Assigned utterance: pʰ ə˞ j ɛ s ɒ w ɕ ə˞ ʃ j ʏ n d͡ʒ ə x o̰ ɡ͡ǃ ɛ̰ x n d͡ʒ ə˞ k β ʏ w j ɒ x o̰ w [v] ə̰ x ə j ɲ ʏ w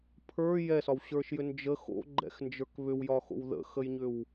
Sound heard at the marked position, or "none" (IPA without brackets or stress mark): ð